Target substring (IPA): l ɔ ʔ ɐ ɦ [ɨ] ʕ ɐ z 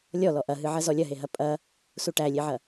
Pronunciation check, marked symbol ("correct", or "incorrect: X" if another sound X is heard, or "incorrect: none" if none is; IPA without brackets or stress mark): correct